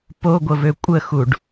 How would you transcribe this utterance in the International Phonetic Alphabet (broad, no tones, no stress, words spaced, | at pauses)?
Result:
poɡʷəvø kʷʼəxuɖ